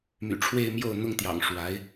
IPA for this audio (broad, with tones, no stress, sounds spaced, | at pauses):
m y̰˨˩ ʈ͡ʂʰ w e˥˧ ɪ̯ m j o˥˩ ʊ̯ n̪ ʊ˥ ŋ t̪ j ɑ̰˨˩ ŋ ʂ w a˧˥ ɪ̯